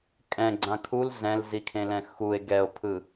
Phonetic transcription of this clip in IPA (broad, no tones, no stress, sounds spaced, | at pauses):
kʼ ɛ̃ ɡ͡ǀ ã kʰ u l z ɛ̃ l z i kʰ ẽ l ɛ̃ x u e̯ ɡ ɛ o̯ pʰ ɯ